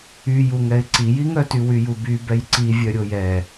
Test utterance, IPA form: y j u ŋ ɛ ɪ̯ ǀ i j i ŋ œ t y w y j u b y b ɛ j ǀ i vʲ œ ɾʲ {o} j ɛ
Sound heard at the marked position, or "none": o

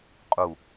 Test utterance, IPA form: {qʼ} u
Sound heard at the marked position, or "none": qʼ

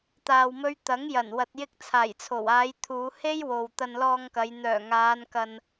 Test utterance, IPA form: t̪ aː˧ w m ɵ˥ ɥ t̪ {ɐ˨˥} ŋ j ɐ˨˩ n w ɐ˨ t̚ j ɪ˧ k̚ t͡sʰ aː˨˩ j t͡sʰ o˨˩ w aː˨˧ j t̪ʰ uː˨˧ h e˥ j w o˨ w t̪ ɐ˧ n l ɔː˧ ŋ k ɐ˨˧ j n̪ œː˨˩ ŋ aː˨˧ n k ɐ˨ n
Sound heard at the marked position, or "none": ɐ˨˥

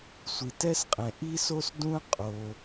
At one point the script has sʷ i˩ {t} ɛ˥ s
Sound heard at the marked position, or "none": t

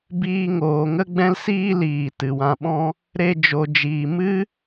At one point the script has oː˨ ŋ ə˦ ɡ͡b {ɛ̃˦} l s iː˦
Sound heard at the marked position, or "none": ɛ̃˦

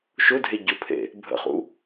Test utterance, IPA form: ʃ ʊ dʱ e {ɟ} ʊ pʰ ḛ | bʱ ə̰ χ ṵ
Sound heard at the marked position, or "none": ɟ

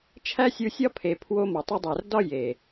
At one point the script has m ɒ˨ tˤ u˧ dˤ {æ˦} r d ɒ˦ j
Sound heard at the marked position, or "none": æ˨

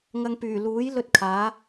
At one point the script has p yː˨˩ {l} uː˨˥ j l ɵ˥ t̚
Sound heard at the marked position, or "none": l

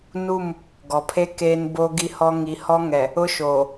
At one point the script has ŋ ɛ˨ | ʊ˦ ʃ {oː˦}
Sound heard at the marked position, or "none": oː˨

